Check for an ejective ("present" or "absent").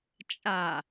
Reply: present